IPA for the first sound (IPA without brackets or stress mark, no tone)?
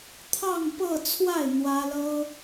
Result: t̪ʰ